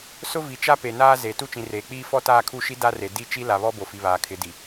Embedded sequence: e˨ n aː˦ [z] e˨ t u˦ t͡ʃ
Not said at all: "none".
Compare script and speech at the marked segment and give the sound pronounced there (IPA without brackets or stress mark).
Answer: z